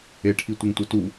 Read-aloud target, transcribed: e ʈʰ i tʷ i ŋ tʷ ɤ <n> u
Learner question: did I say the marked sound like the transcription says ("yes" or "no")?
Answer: no